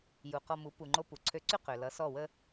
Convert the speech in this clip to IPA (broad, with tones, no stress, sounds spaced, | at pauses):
j u˩ q ɔ˧ m u˩˥ p u˩ ŋ͡ǃ o˧ p u˩ ǀʰ ø˧ ǀ y˥ q ø˩ l ʌ˩˥ s ɔ˥˩ w ə˥